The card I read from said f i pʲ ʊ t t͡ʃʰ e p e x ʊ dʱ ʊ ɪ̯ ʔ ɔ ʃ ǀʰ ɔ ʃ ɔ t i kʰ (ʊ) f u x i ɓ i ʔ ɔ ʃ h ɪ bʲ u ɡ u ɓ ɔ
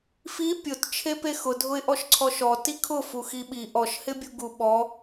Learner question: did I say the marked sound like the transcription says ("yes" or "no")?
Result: yes